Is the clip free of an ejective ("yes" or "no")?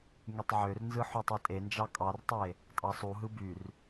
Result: no